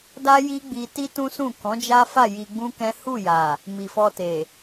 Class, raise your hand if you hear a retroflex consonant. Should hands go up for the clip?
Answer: no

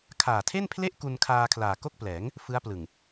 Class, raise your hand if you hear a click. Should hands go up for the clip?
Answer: no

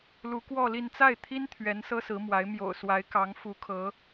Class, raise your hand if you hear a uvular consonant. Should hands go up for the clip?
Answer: no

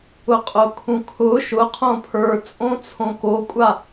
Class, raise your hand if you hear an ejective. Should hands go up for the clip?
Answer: yes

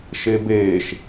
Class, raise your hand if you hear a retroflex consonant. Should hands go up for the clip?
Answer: no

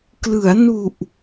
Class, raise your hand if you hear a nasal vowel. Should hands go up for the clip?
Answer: no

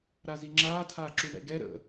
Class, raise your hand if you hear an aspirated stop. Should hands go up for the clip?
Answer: yes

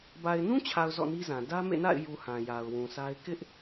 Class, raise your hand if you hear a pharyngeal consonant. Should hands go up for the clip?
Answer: no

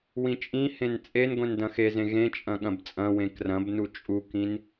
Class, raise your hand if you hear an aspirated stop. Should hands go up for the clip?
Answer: no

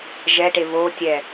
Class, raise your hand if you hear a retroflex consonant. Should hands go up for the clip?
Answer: yes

